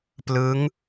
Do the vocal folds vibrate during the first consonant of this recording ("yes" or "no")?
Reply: no